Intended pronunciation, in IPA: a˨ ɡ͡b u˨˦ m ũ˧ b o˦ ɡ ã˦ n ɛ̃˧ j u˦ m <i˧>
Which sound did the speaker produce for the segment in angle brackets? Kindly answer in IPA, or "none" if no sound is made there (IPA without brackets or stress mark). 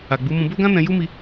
i˧